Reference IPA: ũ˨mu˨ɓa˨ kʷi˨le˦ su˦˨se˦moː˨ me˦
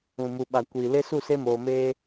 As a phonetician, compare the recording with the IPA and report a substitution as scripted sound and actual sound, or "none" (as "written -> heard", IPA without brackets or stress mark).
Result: none